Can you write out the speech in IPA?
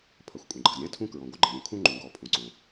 pʰ ɐ˩ xʷ kʷʼ ə̃˩ ɡ͡ǃ ɐ˩ z ɾʲ ã˥ tʰ ũ˥ k ɹ ɔ̃˩ ɡʷ ə˥ ɡ͡ǃ ə̃˩ ɾʲ ũ˩ kʰ ũ˥ ŋ͡ǃ ũ˩ ɡ ɔ˩ pʰ ũ˩ ǀ õ˩

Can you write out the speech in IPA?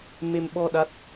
m e˧ m ɓ ɔ˧ ɗ a˦˥ t̚

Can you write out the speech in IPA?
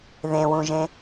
ð ẽ w ũ ʒ ẽ

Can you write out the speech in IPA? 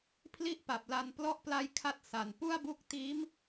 pʰ l i˥˩ ʔ p a˨˩ p̚ l a˧ n p l ɔ˦˥ ʔ p l a˧ j kʰ a˦˥ t̚ s a˩˦ n p u˥˩ a̯ b u˥˩ k̚ t iː˦˥ m

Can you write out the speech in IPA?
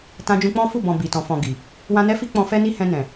t ã˧ d͡ʒ ũ˧ k͡p ɔ̃˦ f u˦˨ b ɔ̃˨ b i˨ t ɔ̃˨ f ɔ̃˨ ɡ i˨ | w ã˧ n ɛ˦ f i˦ k͡p ɔ̃˧ f ɛ˦ n i˦ h ɛ̃˧ n ɛ̃˨

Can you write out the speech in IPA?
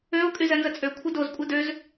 ø o̯ kʼ y z ɛ n z ə t͡sʼ ø kʷʰ ɛ d o z kʷʼ ɛ d ø z

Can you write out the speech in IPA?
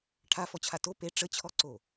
ʈʰ a f ɔ t͡ɕʰ a t o p e ʈ͡ʂ ə t͡ɕʰ ɔ ǀ o

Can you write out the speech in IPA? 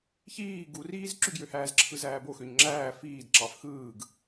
ç iː ɡ u r iː z ǁ y ɡ j ø h æː z ǁʰ ɯ z æː b o x ø ɲ ŋ͡ǁ æː f iː d ǁ ɑ f x ɯː ɡ

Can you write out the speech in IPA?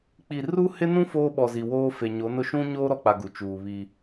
k͡p i˨ r u˦ h ɪ˦ n ũ˦ f oː˦ ɓ ɔ˨ z i˨ w oː˦ f e˨ ɲ o˨˦ n ʊ˦ ʃ ũ˦ ɲ oː˦ ɾ ɔ˨ k͡p a˨ ɡ u˨ t͡ʃ uː˨ β i˦

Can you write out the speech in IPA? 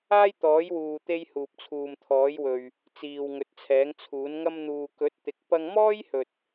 aː˥ j t̪ ɔː˨˥ j w uː˨ t̪ e˧ j h uː˨ p̚ t͡sʰ uː˨ m t̪ʰ ɔː˨˥ j w ɵ˨ ɥ | t͡s iː˨ w ŋ ɵ˨˥ t̚ t͡sʰ ɛː˨˥ ŋ t͡sʰ uː˨˥ n ŋ ɐ˧ m n̪ uː˨ k ɵ˨˥ t̚ t̪ ɪ˨˥ k̚ p ɐ˧ ŋ m ɔː˥ j h ɵ˨ t̚

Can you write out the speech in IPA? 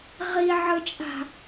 ʁ i ʕ ɯ t͡ʃʼ a̤

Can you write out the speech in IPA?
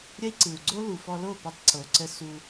ɾʲ ə˦ i̯ ǀ ɯ˨ u̯ ɡ͡ǀ o˦ l u˨ f ɔ˧ l o˦˨ p ə˦ tˤ ǀ o˨ ǀ ə˦ s u˧

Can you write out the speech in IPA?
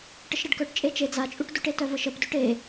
ʈ ə ʃ ɾ ə ɖ k œ ʈ t͡ʃʼ e t͡ʃ e d͡z a t͡ʃʼ u ʈ d u ʈ e t œ v ə ʃ ə p d ø ʈ e

